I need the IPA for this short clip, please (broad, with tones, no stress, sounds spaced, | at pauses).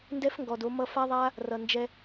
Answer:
n d ɛ˦ f ŋ ɡ ɔ˨ d o˧ m ʌ˧ f a˦ ðˤ a˦ | r ʌ˨ n d͡ʒ ɛ˧